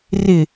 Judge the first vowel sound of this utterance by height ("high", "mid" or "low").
high